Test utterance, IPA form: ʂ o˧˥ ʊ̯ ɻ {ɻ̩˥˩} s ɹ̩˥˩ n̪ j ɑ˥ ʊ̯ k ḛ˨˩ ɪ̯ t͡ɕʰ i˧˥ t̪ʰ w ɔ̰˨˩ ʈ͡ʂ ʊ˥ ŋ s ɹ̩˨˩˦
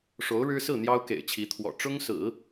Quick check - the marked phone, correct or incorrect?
incorrect